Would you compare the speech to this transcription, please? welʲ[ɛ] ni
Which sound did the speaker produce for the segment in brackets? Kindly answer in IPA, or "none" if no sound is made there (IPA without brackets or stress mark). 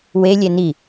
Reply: ɛ